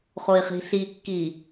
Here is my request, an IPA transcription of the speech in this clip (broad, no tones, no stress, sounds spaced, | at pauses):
χ o i̯ χ i̤ ɬ i kː i